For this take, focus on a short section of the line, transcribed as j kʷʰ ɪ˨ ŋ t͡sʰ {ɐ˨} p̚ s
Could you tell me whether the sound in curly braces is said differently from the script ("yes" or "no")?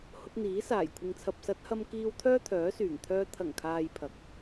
no